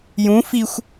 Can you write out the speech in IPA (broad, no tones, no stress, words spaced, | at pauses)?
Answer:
jũ fixʷ